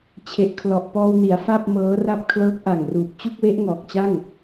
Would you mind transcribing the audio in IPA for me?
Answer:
t͡ɕʰ e˨˩ ʔ kʰ l ɔ˨˩ ʔ p ɔː˧ w n i˩˦ a̯ f a˥˩ p̚ m ɤː˦˥ r a˥˩ p̚ kʰ l ɤː˦˥ k̚ ʔ a˨˩ ŋ r uː˨˩ p̚ t͡ɕ u˥˩ k̚ w e˦˥ ʔ ŋ ɔː˨˩ k̚ t͡ɕ a˥˩ ŋ

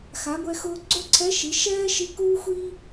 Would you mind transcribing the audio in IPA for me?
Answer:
x a˩˧ ɡʷ ɛ˧ x ʊː˧ ɡ͡ǀ o˥ ǀʰ ɛ˧˥ ʃ i˩˧ ʃ ɛː˥ ʃ i˧˥ k uː˥ xʷ i˥

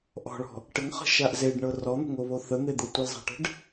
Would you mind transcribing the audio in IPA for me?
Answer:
ʔ ɔ̤ ɭ ɔ̤ | ʈ ə ŋ χ ə̤ ʃ a ʔ z e ɖ ɳ ɤ r ɔ n̪ ə̤ ŋ o β o θ ə n̪ e d̪ ɤ tʷ ə l zˤ a̤ ʈ ə̤ ɖ

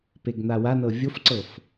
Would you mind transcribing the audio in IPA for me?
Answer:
p e ɡ n̪ a w a n ɤ vʲ o f ǀ ɤ f

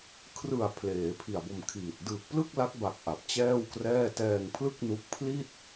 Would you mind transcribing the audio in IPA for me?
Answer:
kʰ r ɯ˨˩ a̯ pʰ l eː˩˦ pʰ i˨˩ a̯ b o˧ m kʰ iː˨˩ t̚ d ɯː˨˩ k̚ p l ɯ˥˩ k̚ l a˦˥ k̚ b a˨˩ k̚ ʔ a˨˩ p̚ t͡ɕ ɛː˥˩ w k r ɛː˥˩ t ɛː˧ ŋ pʰ l ɯ˥˩ k̚ n u˦˥ k̚ pʰ l i˥˩ t̚

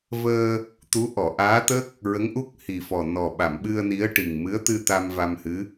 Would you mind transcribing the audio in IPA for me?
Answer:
v əː˧ | t̪ u˧˥ ʔ ɔ˨˩˨ ʔ aː˧˥ t̪ ə˦˥ k̚ | ɹ ə˧˥ ŋ ʔ u˦˥ k̚ h i˨˩ f ɔ˨˩ n ɔ˨˩ ɓ a˨˩˨ m ɓ ɨ˧ ə̯ n i˧˥ ə̯ ʈ i˨˩ ŋ m ɨ˧˥ ə̯ t̪ ɨ˧ t̪ a˧ m v a˧ m h ɨ˧˥

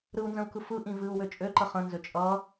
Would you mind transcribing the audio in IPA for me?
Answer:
ɾ ɯ u̯ n z ə̃ u̯ k ɯ f ɯ ʔ ĩ v ɨ u̯ w ø t͡ʃʼ ø ǃ ə χ ə̃ n z ø t͡ʃʼ ʌː

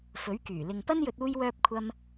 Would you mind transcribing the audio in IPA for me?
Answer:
f ɵ˨˥ ɥ k yː˨˩ l ɪ˨ ŋ p ɐ˥ n j ɵ˧ t̚ uː˥ j w œː˥ p̚ kʷʰ ɐ˥ m

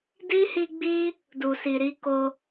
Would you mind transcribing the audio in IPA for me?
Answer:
d i˦ h i˧ ɡ͡b i˦ | d u˨ s i˨ ɾ i˨˦ k o˧

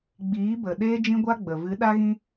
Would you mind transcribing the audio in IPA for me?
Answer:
ɡ͡b iː˨˦ b ə˨ ɗ eː˦ d͡ʒ ĩ˦ ɡʷ a˦ ɡ͡b ə˨ v ɨ˨˦ ɗ a˦ ɣ ĩ˦

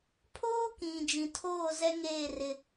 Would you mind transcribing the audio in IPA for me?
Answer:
pʰ oː˦ k ĩ˨ d͡ʒ ĩ˨ tʰ oː˦˨ z ɛ˦ ŋ eː˦˨ r ɪ˦

